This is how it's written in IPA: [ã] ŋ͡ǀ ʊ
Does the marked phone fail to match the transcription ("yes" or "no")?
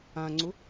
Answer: no